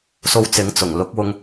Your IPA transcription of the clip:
s o˧ w t͡s ɪ˨˥ ŋ t͡s ʊ˨˩ ŋ l ʊ˨˥ k̚ w ʊ˧ ŋ

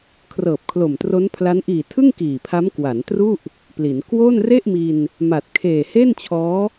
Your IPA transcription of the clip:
kʰ r ɤː˨˩ p̚ kʰ l o˨˩ m t r o˦˥ n pʰ l a˦˥ n ʔ iː˨˩ tʰ ɯ˥˩ ŋ k iː˨˩ pʰ a˦˥ m k w a˩˦ n t r u˥˩ ʔ | p l i˩˦ n k w o˥˩ n r e˥˩ ʔ m i˧ n | m a˨˩ t̚ kʰ eː˨˩ h e˥˩ n t͡ɕʰ ɔː˦˥

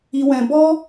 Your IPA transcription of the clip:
i˧ w ɛ̃˧ b ɔ˦

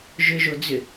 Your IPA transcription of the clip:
ʒ ʏ ʒ o d͡z ʏ

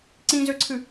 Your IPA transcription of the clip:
ǀ ĩ z ø ǀʰ ɨ

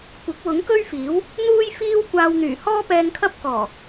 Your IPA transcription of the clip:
kʷ ɪ˨˥ k̚ w ʊ˨˥ ŋ k ɵ˥ ɥ f iː˨˥ w | n̪ uː˥ j f iː˥ w kʷ aː˧ w n̪ yː˨˩ h ɔː˥ p ɛː˧ ŋ kʰ ɐ˥ p̚ k ɔː˨˩

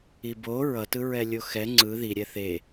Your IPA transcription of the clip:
i b o ɹ ʌ t ɯ ɹ ɛ lʲ o x ɛ ŋ͡ǀ ɯ ð i ɾʲ ɛ θ e

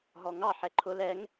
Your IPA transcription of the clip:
ɦ ɔ ŋ ɑ ħ ɛ ǃʰ ʊ l ɛ ŋ

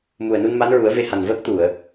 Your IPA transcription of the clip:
m u˨˩ ə̯ n u˧ n m a˧˥ n ɹ u˨˩˦ ə̯ v e˧ h a˨˩ n v əː˦˥ k̚ t̪ u˨˩˨ ə̯

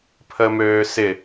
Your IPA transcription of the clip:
pʰ əː m øː s ɪ

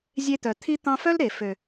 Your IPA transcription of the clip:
zʲ e˦ t̪ œ˨ t̪ʰ i˦ t̪ ɑ̃˧ f œ˦ l ɾ e˨ f ø˨

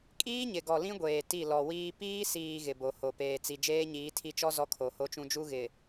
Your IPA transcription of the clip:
kʼ iː˦ ɲ ɪ˨ ɡ ɔ˨ l ĩ˦ ɡʷ eː˨ t i˦˨ l ɔ˨ w iː˦ p iː˦ s iː˨ ɣ ɪ˨ b o˨ h o˨ p eː˨ t͡s i˨ d͡ʒ eː˦ ɲ iː˨˦ tʰ i˦ t͡ʃ ɔ˦ z ɔ˦ kʰ o˨ h o˦ t͡ʃ ũ˦ d͡ʒ u˦ ɣ ɪ˨

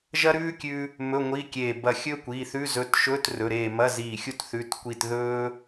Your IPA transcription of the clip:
ʒ ɐ˥ ɾ ʉː˥ kʲ ʉ˥ | m ɵ˧˥˧ ŋʷ i˧˥˧ kʲ eː˧˩ b ɐ˧˩ xʲ ɵː˥ kʷ iː˩˧˩ θ ʉ˧˥˧ z ɵ˧˥˧ t ʃ ɵː˧˥˧ t r ɵ˩˧˩ ɾ eː˧˩ m ɐ˧˥˧ z iː˧˩ xʲ u˥˧ t θ ʉ˧˥˧ t kʷ i˥˧ t ð ɵː˥

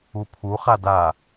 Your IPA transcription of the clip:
u pʰ u χ a d a

